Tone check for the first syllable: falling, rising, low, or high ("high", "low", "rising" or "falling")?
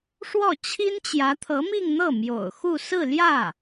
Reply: falling